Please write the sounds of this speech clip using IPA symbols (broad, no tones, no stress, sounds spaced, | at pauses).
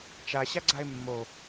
t͡ʃ a ɕ a ɡ͡ǀ a e̯ mː o